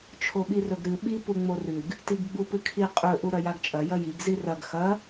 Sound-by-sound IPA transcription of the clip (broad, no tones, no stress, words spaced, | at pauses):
t͡ʃʰoɓirɵɡɾɨ ɓi puŋ͡morʉɡ | tiɡɡ͡bupɨkʰi qʼɵ ʔuɾɐjaɡt͡ʃʼɐ jɐjiɡ zirɐɡ xɐ